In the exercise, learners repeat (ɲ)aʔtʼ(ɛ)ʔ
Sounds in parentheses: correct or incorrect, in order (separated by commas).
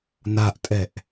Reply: incorrect, correct